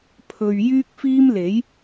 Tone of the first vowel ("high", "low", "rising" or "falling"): low